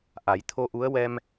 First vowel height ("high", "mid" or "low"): low